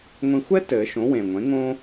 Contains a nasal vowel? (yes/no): yes